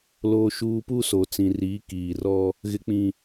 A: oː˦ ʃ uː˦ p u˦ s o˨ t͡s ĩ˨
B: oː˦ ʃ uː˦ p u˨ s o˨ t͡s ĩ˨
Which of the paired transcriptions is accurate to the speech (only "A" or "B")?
A